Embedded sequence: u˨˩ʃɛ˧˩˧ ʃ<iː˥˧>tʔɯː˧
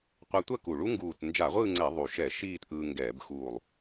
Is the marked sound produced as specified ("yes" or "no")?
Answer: yes